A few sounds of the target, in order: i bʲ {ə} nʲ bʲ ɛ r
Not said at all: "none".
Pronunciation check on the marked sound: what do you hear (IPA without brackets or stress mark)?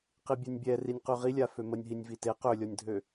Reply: ɛ